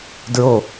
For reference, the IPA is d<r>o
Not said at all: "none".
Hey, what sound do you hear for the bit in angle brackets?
ɹ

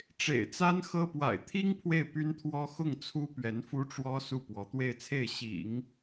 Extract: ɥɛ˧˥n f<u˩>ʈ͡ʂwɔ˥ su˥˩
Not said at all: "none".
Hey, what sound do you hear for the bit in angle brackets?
u˥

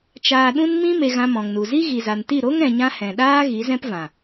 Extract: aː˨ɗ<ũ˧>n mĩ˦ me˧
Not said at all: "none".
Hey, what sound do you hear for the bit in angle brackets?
ũ˧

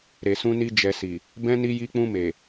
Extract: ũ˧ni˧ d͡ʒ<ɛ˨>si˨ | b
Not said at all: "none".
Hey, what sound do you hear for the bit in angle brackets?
ɛ˨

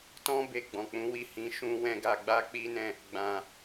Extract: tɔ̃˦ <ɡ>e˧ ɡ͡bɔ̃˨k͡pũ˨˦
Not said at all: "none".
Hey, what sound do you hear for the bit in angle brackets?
b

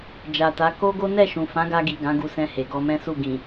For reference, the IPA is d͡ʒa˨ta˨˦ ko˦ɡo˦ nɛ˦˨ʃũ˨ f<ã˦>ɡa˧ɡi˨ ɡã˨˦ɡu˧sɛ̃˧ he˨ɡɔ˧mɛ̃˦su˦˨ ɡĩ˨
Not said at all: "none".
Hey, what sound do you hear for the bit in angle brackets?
ã˨˦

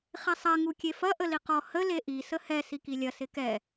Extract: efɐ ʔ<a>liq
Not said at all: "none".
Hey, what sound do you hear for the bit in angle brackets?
ə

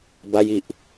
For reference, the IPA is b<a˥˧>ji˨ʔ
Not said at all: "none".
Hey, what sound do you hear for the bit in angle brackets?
a˧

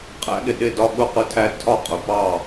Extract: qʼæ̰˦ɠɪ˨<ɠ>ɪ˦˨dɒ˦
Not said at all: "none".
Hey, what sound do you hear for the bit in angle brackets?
ɗ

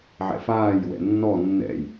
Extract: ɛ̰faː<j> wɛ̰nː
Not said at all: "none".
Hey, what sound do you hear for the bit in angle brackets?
j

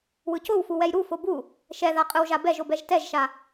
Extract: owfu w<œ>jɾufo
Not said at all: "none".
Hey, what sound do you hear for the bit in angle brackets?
ɛ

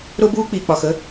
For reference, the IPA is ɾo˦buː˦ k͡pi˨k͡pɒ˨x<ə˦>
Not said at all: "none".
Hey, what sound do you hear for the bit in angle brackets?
ə˦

